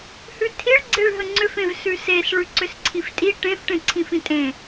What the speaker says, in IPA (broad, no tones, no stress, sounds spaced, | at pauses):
h ʉ tʰ i ɭ ɡ͡ǀ e ɭ ɦ ə ŋ͡ǀ ʏ f ẽ v s ʉ s e s ɭ ʉ ǀ ʏ s ǀʰ i f tʼ i ʈ ẽ f ʈ ẽ ǀʰ ĩ f ĩ tʼ ẽ